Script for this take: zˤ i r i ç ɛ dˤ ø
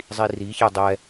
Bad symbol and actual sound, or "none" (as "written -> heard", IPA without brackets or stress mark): ø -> ɛ